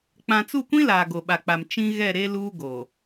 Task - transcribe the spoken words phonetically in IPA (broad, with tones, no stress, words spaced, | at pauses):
k͡pã˨t͡su˦˨kʷĩ˦ laː˨ɡo˨ɓa˨k͡pa˨m t͡ʃĩ˦ ɣɛ˦˨ ɾe˦ luː˦ɡoː˨